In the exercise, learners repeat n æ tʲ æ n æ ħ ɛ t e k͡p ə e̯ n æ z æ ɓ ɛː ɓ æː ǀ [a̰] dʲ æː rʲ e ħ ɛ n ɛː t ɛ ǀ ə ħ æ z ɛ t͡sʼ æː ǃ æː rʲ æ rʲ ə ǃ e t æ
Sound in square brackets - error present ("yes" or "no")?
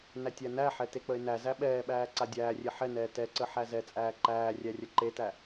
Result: yes